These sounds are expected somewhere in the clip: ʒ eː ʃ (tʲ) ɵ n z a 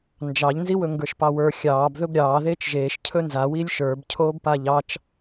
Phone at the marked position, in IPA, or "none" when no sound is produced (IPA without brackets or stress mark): cʰ